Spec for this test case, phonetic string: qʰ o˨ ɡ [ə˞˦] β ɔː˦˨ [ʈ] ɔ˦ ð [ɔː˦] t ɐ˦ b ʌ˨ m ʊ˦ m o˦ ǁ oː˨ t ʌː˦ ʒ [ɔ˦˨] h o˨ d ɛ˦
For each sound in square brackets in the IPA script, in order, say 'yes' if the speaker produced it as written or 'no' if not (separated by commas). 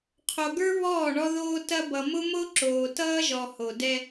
yes, no, no, no